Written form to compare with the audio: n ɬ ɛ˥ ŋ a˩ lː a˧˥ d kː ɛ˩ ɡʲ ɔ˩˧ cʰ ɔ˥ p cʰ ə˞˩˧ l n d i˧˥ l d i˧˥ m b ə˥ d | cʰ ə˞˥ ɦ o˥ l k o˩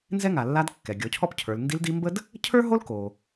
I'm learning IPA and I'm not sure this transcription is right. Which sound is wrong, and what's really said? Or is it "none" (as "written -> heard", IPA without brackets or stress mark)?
ɬ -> z